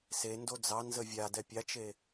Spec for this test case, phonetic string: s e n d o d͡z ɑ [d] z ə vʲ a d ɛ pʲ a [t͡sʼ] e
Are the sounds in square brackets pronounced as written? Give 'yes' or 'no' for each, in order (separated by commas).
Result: no, no